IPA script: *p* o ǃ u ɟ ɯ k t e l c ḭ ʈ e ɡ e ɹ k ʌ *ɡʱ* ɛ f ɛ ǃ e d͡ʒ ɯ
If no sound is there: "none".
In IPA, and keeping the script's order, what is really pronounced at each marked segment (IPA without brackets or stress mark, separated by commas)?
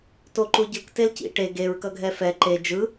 t, ɡʱ